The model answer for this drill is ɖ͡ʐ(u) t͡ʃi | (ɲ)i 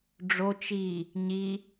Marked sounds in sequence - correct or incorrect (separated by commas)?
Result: incorrect, correct